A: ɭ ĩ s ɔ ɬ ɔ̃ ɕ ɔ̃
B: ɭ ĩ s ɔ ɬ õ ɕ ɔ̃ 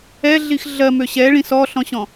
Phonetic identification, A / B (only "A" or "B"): A